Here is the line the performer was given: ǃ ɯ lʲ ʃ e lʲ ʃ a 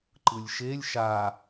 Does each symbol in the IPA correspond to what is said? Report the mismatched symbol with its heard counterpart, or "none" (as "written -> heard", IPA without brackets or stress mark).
none